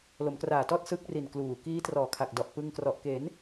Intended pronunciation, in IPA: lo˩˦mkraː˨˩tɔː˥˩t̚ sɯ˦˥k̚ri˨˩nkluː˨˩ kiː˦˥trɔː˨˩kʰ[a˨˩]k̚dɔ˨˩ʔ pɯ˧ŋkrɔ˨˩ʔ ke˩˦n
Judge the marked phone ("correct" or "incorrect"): correct